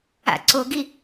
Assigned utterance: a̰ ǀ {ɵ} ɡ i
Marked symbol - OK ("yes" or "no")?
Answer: no